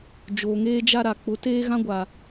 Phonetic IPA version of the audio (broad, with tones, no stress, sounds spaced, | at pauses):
d͡ʒ oː˨ ŋ eː˦ d͡ʒ a˦ ɾ a˨ k͡p ʊ˨˦ t eː˦ ɣ ã˦ ɡʷ a˨